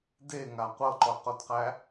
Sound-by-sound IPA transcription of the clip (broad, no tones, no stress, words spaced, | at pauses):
deŋa qʷɤǃɔqodqæ